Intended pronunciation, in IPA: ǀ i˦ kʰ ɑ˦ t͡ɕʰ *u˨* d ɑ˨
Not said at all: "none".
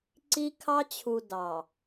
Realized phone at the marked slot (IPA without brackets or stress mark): u˨